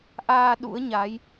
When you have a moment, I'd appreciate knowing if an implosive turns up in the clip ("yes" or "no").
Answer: yes